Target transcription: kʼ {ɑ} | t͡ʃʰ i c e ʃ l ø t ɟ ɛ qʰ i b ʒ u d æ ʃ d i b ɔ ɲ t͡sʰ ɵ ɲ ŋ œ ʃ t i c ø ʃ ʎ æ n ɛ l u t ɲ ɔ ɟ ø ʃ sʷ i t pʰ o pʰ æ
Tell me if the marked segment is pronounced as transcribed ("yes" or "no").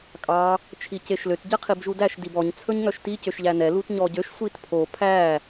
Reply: yes